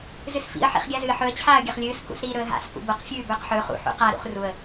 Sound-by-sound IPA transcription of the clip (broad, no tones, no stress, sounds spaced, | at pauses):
z ɨ s f ḭ ə̯ ħ ḭ χ ɡʲ a z ɨː ħ ɵ ə̯ t͡ɕʰ aː ə̯ ɡʲ ɐ χ lʲ ɨː s k ṵ s ɾ iː ɾ ɵ ə̯ ɦ a̰ s k ṵ b o q fʲ ʉː b ɵː q ħ ɵː χ ṵ ħ ṵ q a ɾ ṵ χ r u ə̯